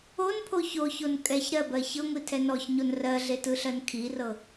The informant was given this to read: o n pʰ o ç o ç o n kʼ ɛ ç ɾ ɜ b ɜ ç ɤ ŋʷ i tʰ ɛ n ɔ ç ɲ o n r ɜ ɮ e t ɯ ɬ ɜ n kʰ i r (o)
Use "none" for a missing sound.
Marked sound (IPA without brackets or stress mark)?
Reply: ɤ